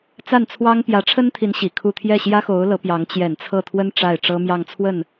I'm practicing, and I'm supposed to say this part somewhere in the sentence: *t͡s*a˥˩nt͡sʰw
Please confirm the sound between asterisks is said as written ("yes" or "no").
yes